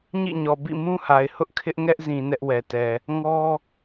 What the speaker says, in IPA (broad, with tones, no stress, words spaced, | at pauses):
ɲḭ˦˨ɲɔ˨ bḭ˦˨mũ˦ha˨ɪ̯ hʊ˦ʔkʰɪ˦ʔ ŋɛ˦ʔzĩ˨ nɛ˦ʔwɛ˨tɛ˨ | ŋɔ˦